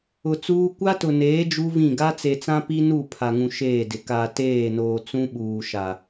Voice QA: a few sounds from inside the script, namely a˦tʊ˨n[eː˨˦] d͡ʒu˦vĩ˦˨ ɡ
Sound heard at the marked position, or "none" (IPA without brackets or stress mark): eː˨˦